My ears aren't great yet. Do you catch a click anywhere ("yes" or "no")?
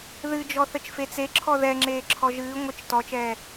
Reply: yes